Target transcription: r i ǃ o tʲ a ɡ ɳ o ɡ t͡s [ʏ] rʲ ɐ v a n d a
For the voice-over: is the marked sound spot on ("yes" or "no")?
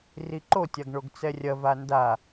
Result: no